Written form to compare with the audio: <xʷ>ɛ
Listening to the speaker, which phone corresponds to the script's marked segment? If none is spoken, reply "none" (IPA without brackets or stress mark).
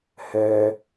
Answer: h